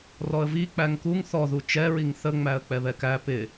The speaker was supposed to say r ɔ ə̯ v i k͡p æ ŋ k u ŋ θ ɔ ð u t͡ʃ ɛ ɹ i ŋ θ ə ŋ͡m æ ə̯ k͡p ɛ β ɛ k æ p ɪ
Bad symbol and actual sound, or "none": none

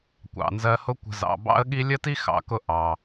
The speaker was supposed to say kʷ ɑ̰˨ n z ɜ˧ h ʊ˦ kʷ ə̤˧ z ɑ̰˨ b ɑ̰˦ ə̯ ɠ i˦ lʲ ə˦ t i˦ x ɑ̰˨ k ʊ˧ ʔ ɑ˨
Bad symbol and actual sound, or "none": none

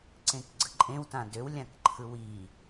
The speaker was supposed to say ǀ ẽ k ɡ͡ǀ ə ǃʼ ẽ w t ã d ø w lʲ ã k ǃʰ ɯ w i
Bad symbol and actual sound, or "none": none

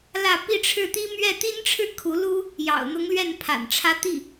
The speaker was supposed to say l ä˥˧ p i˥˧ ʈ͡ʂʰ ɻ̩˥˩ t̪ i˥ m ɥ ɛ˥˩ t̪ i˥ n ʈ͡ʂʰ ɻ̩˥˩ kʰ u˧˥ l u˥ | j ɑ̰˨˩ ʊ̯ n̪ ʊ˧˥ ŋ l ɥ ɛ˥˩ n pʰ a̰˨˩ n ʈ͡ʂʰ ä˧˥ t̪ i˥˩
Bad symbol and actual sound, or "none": none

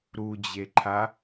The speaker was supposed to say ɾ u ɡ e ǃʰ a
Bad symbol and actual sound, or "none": ɡ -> d͡ʑ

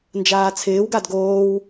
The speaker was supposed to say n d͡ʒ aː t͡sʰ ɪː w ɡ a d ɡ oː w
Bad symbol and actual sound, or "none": none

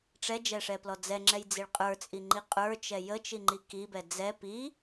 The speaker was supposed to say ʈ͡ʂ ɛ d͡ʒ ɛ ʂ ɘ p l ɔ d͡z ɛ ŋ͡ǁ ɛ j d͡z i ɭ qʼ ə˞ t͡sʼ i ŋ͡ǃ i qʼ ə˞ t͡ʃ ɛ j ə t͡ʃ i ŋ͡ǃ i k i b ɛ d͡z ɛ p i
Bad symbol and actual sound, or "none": ɘ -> ɛ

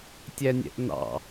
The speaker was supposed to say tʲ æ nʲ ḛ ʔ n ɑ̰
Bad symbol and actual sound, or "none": ḛ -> ɛ̰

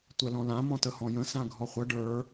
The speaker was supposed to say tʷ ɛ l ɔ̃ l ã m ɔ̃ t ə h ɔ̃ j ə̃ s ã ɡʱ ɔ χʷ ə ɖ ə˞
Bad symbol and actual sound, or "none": none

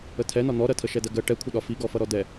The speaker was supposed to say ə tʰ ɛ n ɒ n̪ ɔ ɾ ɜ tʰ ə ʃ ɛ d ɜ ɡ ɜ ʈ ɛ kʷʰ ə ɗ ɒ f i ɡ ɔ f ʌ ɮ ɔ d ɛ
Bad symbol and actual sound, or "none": ɮ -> ɾ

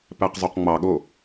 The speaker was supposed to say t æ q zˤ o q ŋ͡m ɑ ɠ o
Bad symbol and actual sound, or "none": t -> p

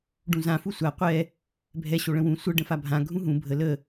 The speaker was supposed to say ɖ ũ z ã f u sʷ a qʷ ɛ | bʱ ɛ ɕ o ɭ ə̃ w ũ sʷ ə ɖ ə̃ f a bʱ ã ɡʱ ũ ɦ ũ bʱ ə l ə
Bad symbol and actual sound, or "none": none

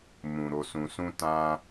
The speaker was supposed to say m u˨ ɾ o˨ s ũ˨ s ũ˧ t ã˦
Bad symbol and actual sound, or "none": u˨ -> ũ˨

